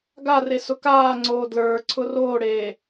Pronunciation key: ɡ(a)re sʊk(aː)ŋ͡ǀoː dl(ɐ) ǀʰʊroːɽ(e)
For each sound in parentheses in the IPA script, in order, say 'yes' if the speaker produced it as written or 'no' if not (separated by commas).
yes, yes, no, no